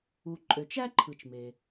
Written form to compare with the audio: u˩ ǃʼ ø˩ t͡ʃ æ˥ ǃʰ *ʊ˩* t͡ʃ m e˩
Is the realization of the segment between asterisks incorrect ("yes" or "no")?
yes